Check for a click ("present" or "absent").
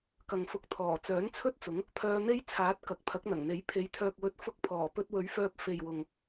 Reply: absent